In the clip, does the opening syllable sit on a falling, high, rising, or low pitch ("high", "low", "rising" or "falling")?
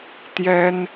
high